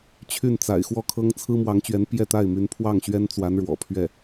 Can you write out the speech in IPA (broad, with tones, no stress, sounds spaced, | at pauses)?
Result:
t͡ɕʰ y˥˩ n t͡s a̰˨˩ ɪ̯ x w ɔ˥˩ kʰ ɤ˥ ŋ t͡sʰ ɹ̩˥ m w ɑ˧˥ ŋ t͡ɕ ɥ ɛ˧˥ n p j ɛ˥˧ t̪ a˥˩ ɪ̯ m y˧˥ n pʰ w ɑ˥˩ ŋ ɕ ɥ ɛ˥ n t͡s w a˧˥ n ɻ w ɔ̰˨˩ pʰ ɥ ɛ˥˩